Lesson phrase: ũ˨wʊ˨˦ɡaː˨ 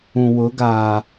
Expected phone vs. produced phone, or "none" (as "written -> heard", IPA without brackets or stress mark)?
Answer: none